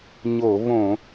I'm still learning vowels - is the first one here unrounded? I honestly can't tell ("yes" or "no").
no